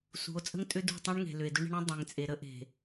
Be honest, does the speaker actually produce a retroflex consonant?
yes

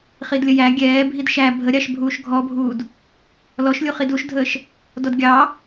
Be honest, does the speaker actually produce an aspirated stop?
no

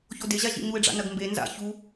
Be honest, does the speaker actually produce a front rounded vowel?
no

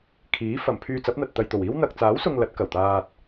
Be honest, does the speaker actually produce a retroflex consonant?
no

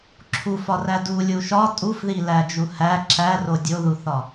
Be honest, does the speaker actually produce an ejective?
yes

